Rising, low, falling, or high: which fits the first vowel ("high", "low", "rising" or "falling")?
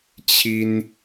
high